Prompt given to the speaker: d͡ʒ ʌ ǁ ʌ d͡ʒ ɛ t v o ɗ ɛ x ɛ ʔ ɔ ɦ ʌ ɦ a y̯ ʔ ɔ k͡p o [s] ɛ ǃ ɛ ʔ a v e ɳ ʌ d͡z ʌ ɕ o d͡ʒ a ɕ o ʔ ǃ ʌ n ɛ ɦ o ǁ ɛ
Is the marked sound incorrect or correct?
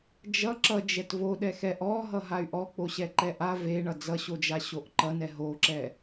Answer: incorrect: ɕ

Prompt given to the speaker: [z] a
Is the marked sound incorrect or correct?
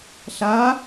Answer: incorrect: ɬ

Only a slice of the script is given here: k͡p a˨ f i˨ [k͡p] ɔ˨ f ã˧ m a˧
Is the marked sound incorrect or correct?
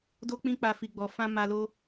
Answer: incorrect: ɡ͡b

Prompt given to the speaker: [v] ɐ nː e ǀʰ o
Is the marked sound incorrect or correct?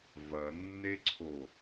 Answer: correct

